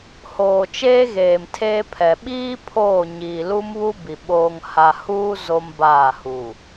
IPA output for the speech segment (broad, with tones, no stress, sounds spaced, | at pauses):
h oː˨ t͡ʃ eː˦ ɣ eː˨ m tʰ eː˦ pʰ ɛ˨ ɓ iː˦ pʰ oː˦˨ ɲ iː˨ l u˦ m β u˦ b i˨ ɓ oː˨ ŋ h a˨ h uː˦ z o˦ m b aː˦˨ h u˨